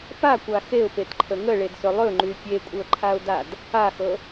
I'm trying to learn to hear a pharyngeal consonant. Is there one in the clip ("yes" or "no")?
no